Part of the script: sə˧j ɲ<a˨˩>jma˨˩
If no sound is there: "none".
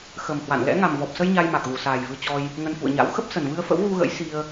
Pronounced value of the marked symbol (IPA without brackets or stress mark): a˧